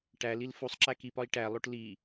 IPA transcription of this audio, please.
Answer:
ʈ æ l i l f u sˤ ǁ æ k i p ɒ i̯ ʈ æ lˠ o ʈ l i

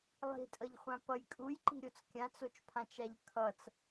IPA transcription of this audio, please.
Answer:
lˠ i̤ tʼ ʌ ʎ χʷ ã p ʌ j kʼ u j ǃ i̤ ɾʲ o t͡s kʲ ã t͡s o t͡ʃ pʰ ã t͡ʃ a ʎ kʰ ʌ t͡s

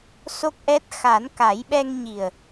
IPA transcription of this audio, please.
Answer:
s o˦˥ k̚ ʔ ɛ˦˥ t̚ x a˨˩˦ n k a˨˩˦ j ɓ ɛ˧ ŋ ɲ i˨˩ ə̯

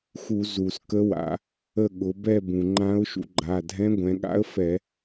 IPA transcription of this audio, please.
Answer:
x u˧˩˧ z u˩ s k ə˧˥ w a̰˩˧ | ə˦˨ ɠ ʊ˩˧ b ɛ˦˨ b ũ˩ ŋ͡ǃ ã˧˥ ʊ̯ ʃ ṵ˩˧ ɡ͡ǃ a˩˧˩ dʱ ɛ̃˧˥ ɡʷ ɛ̃˩˧ ɠ a̰˧˥ ə̯ f ɛ˧˩˧

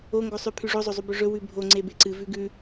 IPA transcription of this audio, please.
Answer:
o ŋ ɡ o sˤ ʉ pʰ ʉ ʐ o zˤ o zˤ u b ɵ ʐ ɵ w ʉ bʱ o ŋ͡ǀ e b e ǀ ɨ v ʉ ɡ ʉ

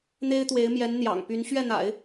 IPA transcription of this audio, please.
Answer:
n̪ e˥ ɪ̯ t̪ w e˧˥ ɪ̯ m j ɛ˧˥ n n̪ j ɑ̰˨˩ ŋ p y˧˥ n ɕ ɥ ɛ˥˩ n̪ a̰˨˩˦ ɪ̯

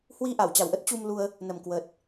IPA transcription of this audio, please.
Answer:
h w i˧ ʔ a˧˩ w t͡ɕ a˨˩ w ʔ ə˦˥ t̚ t͡ɕ u˧ m l u˧ ə̯ | n ə˨˩ m k w ə˨˩ t̚

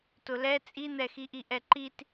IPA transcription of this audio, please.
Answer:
t ʊ l ɛ t͡sʼ i n̪ ɛ x i ʔ i ʔ ɛ ǃ i t

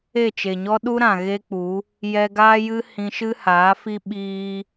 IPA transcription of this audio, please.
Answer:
e˦˨ t͡ʃ e˨ ɲ ɔ˦ ɗ u˦ ɾ ã˨ ɣ e˦ k͡p u˨˦ | j ɛ˧ ɡ aː˦ j ɨ˦ h ĩ˧ ʃ ɨ˦ h aː˨˦ f i˦ ɓ iː˦

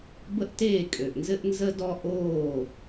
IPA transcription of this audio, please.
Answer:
b ə˦ ʔ t eː˦˨ kʼ ø˨ ʔ n z ɘ˦ ʔ n z ə˦ d ɔ˦ ʔ oː˦˨

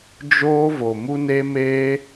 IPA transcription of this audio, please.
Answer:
d͡ʒ oː˦ v o˨ m u˦ n e˦ m eː˦

